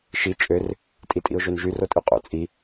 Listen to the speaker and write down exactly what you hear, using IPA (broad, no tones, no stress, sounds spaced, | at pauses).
ʃ i t͡ʃʼ ø r | tʼ i tʼ ḭ ʊ̯ ʒ ø n ʒ y r o tʼ y qʼ o̰ t͡sʼ i